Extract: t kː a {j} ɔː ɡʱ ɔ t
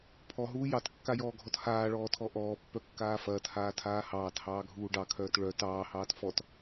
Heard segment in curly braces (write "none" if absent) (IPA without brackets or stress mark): j